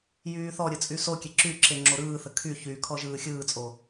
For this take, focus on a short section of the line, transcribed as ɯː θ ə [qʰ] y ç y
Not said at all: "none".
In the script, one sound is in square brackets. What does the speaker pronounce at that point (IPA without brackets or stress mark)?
kʰ